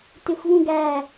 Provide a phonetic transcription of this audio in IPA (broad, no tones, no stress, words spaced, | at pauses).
tɪxʷvũɡæ